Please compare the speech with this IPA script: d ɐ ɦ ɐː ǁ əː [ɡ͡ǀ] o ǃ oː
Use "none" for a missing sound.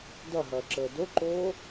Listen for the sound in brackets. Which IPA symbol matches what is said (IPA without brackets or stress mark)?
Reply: d